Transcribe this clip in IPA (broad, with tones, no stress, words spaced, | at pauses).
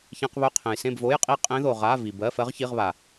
çẽ˧˥˧qβɵ˧˥˧qʰẽ˨j sẽ˥˨bvo˧˥˧jqʼi˥˨ qʼẽ˦˥ðo˨ ʁa˧˥˧ vi˨bɜ˧˥˧ fɜ˦˥ʁ çi˧˥˧ʁβa˨